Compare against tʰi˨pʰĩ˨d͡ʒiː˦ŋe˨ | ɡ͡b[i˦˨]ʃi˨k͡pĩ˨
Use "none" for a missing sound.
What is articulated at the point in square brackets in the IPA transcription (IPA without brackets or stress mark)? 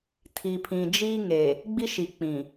i˦